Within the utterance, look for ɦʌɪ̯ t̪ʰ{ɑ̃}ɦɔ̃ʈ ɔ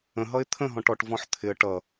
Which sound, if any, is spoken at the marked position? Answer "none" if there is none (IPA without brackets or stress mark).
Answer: ə̃